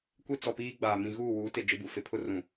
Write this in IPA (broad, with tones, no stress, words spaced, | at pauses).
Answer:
kʷe˦ t͡sɔ˨piː˦ɡ͡baː˨ mĩ˨ɣuː˦˨wuː˨˦te˨ d͡ʒɪ˦bu˨fe˦ pʰʊ˦ rũ˨